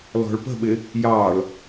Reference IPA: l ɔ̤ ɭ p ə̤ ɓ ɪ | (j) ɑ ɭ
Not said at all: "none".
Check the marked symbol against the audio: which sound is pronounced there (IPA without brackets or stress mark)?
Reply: j